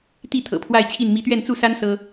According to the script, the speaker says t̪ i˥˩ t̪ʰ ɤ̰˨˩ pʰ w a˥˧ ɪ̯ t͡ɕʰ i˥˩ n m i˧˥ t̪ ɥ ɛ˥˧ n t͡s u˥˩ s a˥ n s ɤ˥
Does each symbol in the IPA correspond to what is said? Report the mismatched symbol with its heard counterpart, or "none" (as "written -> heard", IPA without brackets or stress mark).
none